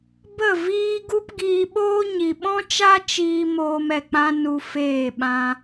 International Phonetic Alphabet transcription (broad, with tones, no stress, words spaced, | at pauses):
bə˦˨viː˦ ɡu˦pɡiː˧ɓoː˦ ɲi˨ɓɔ̃˦t͡ʃa˦ t͡ʃiː˦ moː˧mɛ˨k͡pã˦ nu˧feː˦˨ɓã˦